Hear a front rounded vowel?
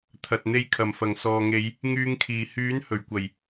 yes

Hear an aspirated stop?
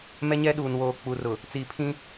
yes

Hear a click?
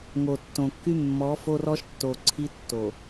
yes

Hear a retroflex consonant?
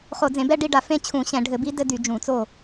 yes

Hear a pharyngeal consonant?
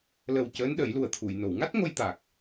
no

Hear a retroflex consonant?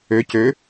no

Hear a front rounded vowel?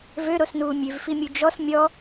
yes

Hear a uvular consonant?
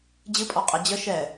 yes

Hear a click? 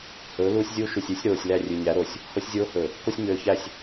no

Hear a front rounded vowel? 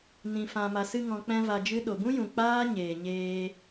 no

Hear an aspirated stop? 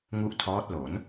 yes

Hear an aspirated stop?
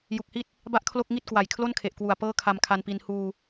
yes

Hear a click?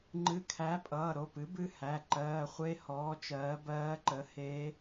yes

